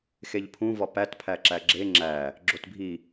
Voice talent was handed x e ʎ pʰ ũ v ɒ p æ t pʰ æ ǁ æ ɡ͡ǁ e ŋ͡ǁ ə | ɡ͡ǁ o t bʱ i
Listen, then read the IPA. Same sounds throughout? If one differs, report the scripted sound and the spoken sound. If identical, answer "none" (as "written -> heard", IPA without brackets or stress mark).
ə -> æ